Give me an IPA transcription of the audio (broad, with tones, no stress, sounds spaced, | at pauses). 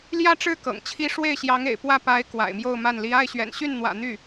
l j ä˥˧ ʈ͡ʂ ɻ̩˥˩ k ɤ̰˨˩ ŋ t͡ɕʰ i˥ ʂ w e˥˩ ɪ̯ ɕ j ɑ˧˥ ŋ ḛ˨˩ ɪ̯ p w ä˥˩ p a˧˥ ɪ̯ k w a̰˨˩ ɪ̯ m j o˥˧ ʊ̯ m a˥˩ n l i˥ a˥˩ ɪ̯ ɕ ɥ ɛ̰˨˩ n ɕ y˥˩ n n̪ w ä̰˨˩ n̪ y˥˩